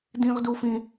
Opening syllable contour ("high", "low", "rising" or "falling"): high